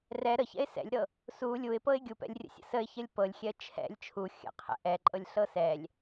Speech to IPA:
r ɛ ɾ ə ç ɛ̰ ɪ̯ s ɛ̰ lʲ ɾ ɤ | s u lʲ u ɪ̯ p ɤ ɪ̯ ɡʲ u p ɛ̰ lʲ rʲ ə̰ sʲ ə̰ s ə ɪ̯ ç ə lʲ p ɤ lʲ xʲ ɛ ə̯ t͡ʃʰ ɛ̰ lʲ t͡ʃʰ u xʲ ə̰ qʰ ɛ̰ ʔ ɛ ǃʼ ɤ lʲ ɬ ɤ s ɛ lʲ

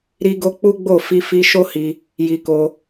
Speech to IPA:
ɾ i˧ ɡ o˧ k͡p u˦ ɡ͡b o˦˨ f i˧ f i˧ ʃ o˦ h i˧ | j i˧ k o˧

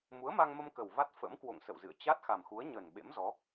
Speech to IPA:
m u˨˦ ə̯ m a˧ ŋ m ə˧ m k ə˨˩ w v a˦˥ t̚ f ə̰˧˥ m k w o̰˧˨ ŋ s ə̰˧˨ w z ɨ̰˧˨ ə̯ t͡ɕ a˦˥ t̚ x a˨˩ m x u˨˦ ə̯ ɲ ə˨˩ n ɓ ḛ˧˥ m z ɔ˨˦

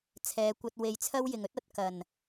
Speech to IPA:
t͡sʰ ɛː˨˧ kʷ ɐ˧ t̚ w e˨ j t͡sʰ ɐ˥ w j ɪ˨ ŋ ɵ˥ t̚ ɐ˨ t̚ k ɐ˨˩ n

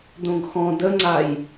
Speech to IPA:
d õ ɡ x ɔ̃ d ə ŋ͡ǀ a j

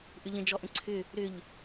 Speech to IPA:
ʔ ʏ ʎ ə̃ d͡ʒ ɔ ʔ ə̃ ǀʰ ʏ | ɾ ʏ ʎ

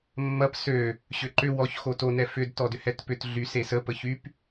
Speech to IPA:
mː ɐ p s ø | ɕ ʏ ǃ ʏ w ɔ ç x o t o n ɛ f ʏ d t ɔ d ʏ h ɛ t p ʏ t ɮ y s e s ə p ə ç y p

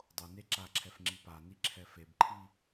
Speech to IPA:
dˤ o n e ǁ a ǁʰ ɛ f ŋ͡ǁ i p a n i ǁʰ ɛ f e b ǃʰ i

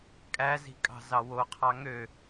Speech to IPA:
kʼ æ z i̤ kʼ ɑ̤ z ɑ w o qʰ ɑ ŋ ø

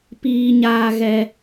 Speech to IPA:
p iː˦ ɲ aː˦ ɣ ɛ˦

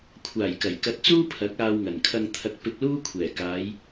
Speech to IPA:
kʷʰ aː˨˩ j k ɐ˨˩ j k ɐ˧ t̚ t͡s uː˥ pʰ ɐ˨˥ k̚ aː˧ w ŋ ɐ˨˩ n kʰ ɐ˧ ŋ t̪ʰ ɐ˨ k̚ p ɪ˧ k̚ l uː˥ kʷʰ ɛː˨˩ k aː˨˧ j

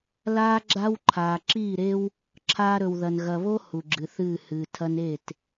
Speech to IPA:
l aː˦ ɡ͡ǁ a˦ w ǃʰ aː˨ ǁ iː˦˨ ɾ e˦ w | ǁʰ aː˧ ɾ ɵ˨ w ð ɐ˨ n ɣ ɐ˨ β o˦ h u˨ ɡ͡ǁ ɨ˨ θ ɨː˦˨ h ɨː˨ tʰ ɐ˦ n e˦˨ t

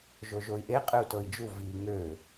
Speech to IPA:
ʒ o ʒ o i̯ ʔ e qʼ ɨ u̯ t ɤ i̯ d͡ʒ u v i ŋ ø

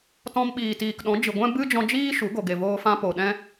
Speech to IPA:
t ɔ̃˧ m ɓ iː˨ t iː˨ k ɗ ɔ̃˨˦ d͡ʒ ɨ˨ ɡʷ ɛ̃˦ b ɨ˦ d͡ʒ ɔ̃˧ d͡ʒ iː˦ ʃ u˨˦ ɡ o˨ ɡ e˨ v oː˧ f ã˧ p o˨ ɗ ɛ̃˦

